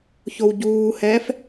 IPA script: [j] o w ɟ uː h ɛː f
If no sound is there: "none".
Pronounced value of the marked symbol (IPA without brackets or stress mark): ç